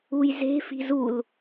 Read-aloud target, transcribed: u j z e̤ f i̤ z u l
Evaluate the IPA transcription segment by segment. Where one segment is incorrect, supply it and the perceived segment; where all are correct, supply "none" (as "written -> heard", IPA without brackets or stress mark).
none